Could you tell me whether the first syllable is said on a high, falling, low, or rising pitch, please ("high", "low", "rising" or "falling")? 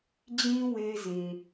high